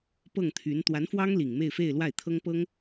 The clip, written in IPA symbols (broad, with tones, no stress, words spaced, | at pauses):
pɤ˥˩ŋt̪ʰy˧˥n t̪wa˧˥nfwɑ˥ŋ li˨˩ŋme˥˧ɪ̯fe˥˧ɪ̯ lwa˥˩ɪ̯t̪ʰɤ˥ŋpɤ˥ŋ